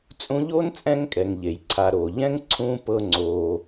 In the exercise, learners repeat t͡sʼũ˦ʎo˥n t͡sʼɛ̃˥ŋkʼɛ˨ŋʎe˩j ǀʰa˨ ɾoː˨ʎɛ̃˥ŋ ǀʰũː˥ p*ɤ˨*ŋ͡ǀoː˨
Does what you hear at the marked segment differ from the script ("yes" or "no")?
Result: yes